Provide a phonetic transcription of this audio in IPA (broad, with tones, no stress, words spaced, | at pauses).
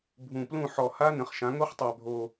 bʱũ˨˩plũ˦˨ ħɔ˨˩ha˦˥ nə̃˩˧χʃã˩˧ ŋo˦˥χtˤæ˨˩bʱo˨˩